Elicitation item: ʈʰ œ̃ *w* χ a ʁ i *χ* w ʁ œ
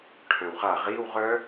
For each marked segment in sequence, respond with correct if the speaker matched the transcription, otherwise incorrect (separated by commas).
correct, incorrect